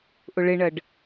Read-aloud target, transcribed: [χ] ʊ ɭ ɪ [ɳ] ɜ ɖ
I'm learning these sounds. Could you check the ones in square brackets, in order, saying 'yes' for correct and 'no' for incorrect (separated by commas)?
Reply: no, yes